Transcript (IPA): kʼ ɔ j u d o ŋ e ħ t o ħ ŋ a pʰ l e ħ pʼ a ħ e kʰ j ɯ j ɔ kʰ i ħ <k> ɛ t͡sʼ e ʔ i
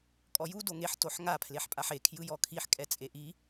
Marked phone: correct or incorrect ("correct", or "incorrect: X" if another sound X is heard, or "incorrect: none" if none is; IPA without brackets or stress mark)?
incorrect: kʼ